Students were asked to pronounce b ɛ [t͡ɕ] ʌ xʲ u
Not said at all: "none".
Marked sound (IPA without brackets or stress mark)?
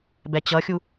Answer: t͡ɕ